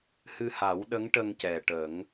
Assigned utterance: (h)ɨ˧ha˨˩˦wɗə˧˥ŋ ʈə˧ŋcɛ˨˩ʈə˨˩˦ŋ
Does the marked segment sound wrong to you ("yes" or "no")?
no